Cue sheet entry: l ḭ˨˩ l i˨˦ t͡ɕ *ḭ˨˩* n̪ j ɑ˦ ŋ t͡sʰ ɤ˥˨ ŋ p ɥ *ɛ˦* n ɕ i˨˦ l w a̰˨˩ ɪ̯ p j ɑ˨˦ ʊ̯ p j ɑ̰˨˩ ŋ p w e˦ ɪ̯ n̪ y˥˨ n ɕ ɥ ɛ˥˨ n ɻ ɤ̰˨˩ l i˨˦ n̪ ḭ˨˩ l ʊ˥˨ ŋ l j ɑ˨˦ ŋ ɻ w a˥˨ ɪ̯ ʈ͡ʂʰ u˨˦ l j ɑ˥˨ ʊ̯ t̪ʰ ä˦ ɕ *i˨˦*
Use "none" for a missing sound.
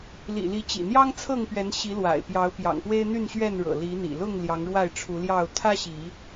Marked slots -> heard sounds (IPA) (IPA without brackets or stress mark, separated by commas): ḭ˨˩, ɛ˨˦, i˨˦